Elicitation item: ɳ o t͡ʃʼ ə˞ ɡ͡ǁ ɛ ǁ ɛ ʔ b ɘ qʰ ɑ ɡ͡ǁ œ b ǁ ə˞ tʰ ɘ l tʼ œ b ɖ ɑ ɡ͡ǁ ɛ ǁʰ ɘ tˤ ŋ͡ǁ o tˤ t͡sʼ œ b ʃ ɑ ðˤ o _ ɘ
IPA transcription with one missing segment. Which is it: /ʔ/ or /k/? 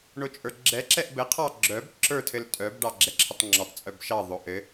ʔ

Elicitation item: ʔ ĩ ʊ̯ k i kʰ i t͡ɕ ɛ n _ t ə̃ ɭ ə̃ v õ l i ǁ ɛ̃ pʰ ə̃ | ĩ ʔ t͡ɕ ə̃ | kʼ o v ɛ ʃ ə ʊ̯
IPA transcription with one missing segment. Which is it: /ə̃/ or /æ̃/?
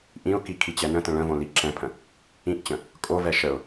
ə̃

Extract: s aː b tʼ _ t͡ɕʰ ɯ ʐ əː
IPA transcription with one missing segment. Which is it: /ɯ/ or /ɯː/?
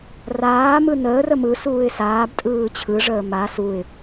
ɯː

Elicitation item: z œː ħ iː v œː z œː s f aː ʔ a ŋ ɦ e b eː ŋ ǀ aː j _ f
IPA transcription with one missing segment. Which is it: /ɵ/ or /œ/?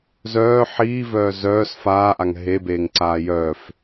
œ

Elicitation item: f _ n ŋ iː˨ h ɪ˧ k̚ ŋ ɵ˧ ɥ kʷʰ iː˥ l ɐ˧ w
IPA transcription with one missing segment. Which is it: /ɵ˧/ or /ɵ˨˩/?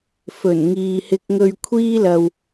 ɵ˨˩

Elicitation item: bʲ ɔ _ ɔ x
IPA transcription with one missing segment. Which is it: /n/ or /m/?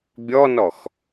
n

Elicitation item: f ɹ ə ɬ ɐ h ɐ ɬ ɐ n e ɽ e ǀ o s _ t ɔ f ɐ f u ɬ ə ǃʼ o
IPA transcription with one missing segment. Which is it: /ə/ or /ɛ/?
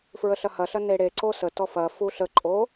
ə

